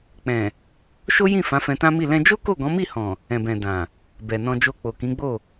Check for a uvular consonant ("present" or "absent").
absent